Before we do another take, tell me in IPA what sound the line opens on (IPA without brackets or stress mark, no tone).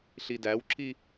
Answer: ɬ